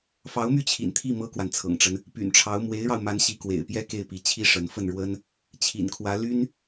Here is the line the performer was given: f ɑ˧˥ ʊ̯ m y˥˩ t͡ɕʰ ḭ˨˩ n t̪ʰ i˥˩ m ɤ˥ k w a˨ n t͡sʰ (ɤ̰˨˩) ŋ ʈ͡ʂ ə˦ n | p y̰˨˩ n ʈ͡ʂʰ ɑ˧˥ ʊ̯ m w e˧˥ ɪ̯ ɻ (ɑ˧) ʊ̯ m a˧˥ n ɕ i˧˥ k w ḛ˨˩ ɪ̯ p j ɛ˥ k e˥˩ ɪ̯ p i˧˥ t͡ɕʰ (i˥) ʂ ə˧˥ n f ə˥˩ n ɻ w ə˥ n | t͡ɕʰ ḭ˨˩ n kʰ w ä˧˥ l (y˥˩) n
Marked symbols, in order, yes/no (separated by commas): yes, yes, yes, no